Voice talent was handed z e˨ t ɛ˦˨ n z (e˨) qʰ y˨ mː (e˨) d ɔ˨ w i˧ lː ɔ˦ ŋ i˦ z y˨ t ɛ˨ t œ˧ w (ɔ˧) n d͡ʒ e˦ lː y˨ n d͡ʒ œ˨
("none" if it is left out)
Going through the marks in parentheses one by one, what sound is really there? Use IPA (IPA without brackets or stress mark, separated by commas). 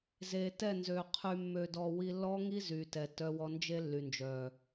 ø˨, ø˨, ɔ˧